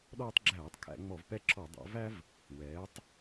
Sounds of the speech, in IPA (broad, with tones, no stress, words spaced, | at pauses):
ɗɔː˦tˤɡ͡ǁæː˧˩˧tˤkʰæ̰˧˩˧ ŋ͡mɔ˧˩˧vpɛ˦ǁʰɔ˧˩˧ dˤæ̰˩˧væ˦v | wɛː˩˧tˤ